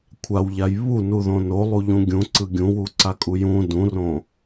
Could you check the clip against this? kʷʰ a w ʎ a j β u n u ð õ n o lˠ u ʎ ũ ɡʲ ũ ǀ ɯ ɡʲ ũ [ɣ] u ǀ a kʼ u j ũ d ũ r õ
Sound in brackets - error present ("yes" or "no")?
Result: yes